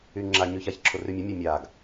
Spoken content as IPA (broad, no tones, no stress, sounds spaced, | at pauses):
y ŋ͡ǁ a ɲ y ç a ç ǁʰ ʊ r y mʲ e mʲ a mʲ a ɡ